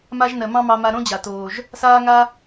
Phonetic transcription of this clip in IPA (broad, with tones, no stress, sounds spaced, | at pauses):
m a˦ ʒ n ɜ˨ m ɑ̃˦ m ɑ˧ m a˧ ɾ õ˦ d͡ʑ a˨ t oː˨ ʒ | s aː˦ ŋ a˦